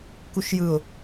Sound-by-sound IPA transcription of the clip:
k u ʃ j ɯ ʊ̯

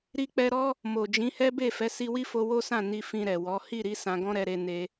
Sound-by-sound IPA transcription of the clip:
ɾ i˧ k͡p ɛ˧ ɾ ɔ˦ | m o˨ d͡ʒ ĩ˨˦ h ɛ˦ b e˦˨ f ɛ˨˦ s i˧ w i˦ f o˧ w o˦ s ã˦˨ n i˧ f ĩ˧ ɾ ɛ˨ w ɔ˨˦ h i˦˨ ɾ i˧ s ã˧ ɡ ɔ̃˦ ɾ ɛ˧ ɾ e˧ n e˦

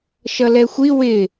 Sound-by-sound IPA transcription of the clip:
ʃ ʌ l ɛ xʷ i w ɪ

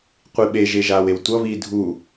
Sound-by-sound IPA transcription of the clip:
qʷ i ɓ e ʒ e ʒ aː w e w tʷ ʌ β iː dʱ u

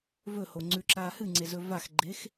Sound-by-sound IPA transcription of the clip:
v ɵ h o ŋ͡ǀ ʉ ǁ aː h ɨ ŋ͡ǀ e z ɵ v a x ɡ͡ǃ e x

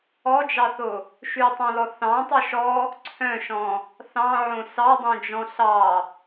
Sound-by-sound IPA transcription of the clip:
ɔ d͡ʒ ɑ θ o | ʃ ʉ tˤ ɑ̃ l ɔ θ ɑ̃ tˤ ɵ ʃ ɔ | ǀʰ œ̃ ʃ ɔ̃ | θ ɑ̃ ʕ õ s ɑ dˤ õ d͡ʒ ɔ̃ ɬ ɑ

